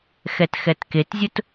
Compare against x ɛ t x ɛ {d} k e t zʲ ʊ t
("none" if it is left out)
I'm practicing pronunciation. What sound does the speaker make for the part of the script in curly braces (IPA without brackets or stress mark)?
t